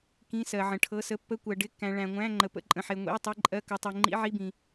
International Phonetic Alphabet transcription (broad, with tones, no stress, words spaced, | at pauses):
kĩ˧˥˧sɜ˨ʕə̃˨ʈʰɤ˧˥˧ sə˧˥˧pːə˧˥˧kʷɜ˨ ɖɪ˧˥˧kːæ̃˨ ɭæ̃˨ŋʷæ̃˧˥˧ ŋ͡ǃə˨pə̰˧˥˧ǃʼə̃˨ħe˨ ŋʷḭ˧˥˧e̯tˤi˧˥˧ǃʼɜ˧˥˧ kɤ˨tˤe˨ ŋ͡ǃḭ˧˥˧ʕi˧˥˧bĩ˨